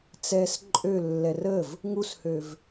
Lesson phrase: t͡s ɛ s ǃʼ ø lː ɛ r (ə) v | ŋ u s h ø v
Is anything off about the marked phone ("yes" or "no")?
no